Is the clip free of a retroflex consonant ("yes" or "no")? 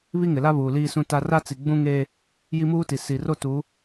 yes